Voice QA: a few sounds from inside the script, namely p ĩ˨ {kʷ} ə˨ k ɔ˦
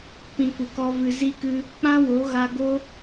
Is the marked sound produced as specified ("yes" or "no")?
yes